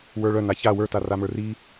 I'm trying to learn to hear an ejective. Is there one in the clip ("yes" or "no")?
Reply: no